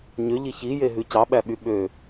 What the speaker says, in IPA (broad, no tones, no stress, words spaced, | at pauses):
ɲø ʎiçije ɦʉcɑɓæɓy ɓø